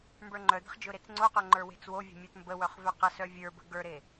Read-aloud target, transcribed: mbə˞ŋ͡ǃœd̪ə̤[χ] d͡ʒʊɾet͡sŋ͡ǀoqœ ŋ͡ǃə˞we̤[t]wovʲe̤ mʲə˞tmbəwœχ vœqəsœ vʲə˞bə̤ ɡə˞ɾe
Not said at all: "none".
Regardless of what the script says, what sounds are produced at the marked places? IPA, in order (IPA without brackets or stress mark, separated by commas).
χ, t͡s